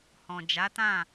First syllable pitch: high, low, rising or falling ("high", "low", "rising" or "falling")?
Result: low